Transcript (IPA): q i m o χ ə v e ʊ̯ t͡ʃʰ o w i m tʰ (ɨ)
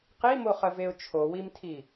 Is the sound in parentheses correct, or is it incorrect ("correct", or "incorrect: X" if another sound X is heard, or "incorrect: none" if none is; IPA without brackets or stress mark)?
incorrect: i